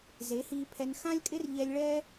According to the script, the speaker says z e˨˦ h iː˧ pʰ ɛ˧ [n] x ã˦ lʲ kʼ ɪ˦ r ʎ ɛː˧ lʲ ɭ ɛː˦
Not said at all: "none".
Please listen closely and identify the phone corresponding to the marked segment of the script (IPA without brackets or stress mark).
n